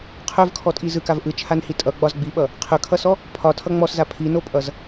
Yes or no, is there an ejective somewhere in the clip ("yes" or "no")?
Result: yes